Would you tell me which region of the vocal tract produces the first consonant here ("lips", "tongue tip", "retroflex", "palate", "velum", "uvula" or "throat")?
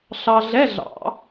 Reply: tongue tip